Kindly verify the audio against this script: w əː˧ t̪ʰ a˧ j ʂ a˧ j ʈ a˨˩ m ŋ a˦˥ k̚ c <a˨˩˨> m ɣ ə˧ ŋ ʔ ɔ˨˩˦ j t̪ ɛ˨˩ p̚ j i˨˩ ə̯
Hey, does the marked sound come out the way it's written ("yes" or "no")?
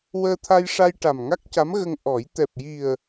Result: no